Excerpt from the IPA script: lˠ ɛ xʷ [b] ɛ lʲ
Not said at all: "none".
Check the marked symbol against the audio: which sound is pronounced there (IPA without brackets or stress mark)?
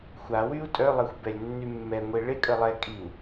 b